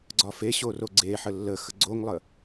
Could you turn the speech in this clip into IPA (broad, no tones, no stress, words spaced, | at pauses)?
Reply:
ɡ͡ǀɒfeɕo roɡ͡ǀeħə lːəxə ɡ͡ǀoŋlˠə